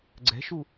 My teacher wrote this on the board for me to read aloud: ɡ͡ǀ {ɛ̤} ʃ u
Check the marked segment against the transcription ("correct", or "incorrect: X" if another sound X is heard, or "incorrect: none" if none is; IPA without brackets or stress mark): correct